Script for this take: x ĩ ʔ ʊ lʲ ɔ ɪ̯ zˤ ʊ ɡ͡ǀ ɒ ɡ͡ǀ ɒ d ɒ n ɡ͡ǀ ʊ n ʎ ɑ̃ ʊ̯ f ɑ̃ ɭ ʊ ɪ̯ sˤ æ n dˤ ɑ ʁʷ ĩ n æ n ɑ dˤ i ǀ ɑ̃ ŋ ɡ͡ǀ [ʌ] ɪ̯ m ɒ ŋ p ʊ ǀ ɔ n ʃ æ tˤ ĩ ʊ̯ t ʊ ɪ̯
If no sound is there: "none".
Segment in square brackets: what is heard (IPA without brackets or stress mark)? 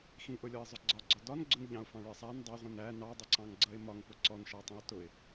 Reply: ʌ